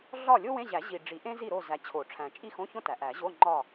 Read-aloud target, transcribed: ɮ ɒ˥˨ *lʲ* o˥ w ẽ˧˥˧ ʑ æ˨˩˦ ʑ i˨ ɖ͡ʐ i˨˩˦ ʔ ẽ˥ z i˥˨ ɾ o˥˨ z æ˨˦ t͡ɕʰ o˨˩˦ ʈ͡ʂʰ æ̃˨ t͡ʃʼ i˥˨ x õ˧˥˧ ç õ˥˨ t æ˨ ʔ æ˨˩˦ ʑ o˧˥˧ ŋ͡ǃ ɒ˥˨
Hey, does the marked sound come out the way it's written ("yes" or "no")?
yes